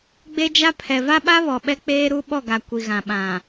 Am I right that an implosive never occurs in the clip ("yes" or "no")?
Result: no